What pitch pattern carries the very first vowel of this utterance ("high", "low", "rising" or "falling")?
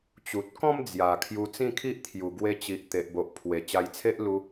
low